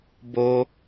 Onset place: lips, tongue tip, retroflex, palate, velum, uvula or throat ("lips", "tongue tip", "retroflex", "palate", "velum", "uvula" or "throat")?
lips